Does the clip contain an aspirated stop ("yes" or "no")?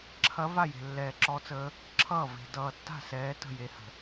yes